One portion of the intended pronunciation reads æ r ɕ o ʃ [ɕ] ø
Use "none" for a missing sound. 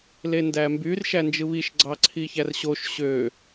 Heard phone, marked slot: ɕ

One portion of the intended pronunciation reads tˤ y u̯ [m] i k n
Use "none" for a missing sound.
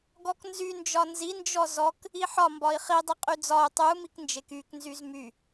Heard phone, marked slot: m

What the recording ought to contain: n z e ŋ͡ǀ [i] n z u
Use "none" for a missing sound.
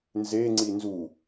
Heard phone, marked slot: i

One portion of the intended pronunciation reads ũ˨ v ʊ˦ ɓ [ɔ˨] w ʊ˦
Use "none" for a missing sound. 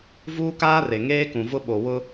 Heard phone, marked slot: o˨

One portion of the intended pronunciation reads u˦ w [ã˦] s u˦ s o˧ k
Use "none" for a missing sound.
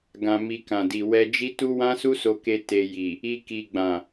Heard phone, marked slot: ã˦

